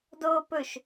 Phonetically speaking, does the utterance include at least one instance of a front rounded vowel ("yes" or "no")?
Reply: no